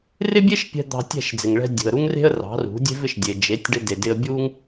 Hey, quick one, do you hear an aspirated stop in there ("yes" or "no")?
no